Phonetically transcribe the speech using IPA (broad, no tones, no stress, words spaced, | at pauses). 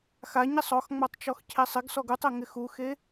xaɲisˤ ɔxŋ͡matˤt͡ʃɔxcʰe sˤɪɡsɔɡ utˤɛŋɪ xuxe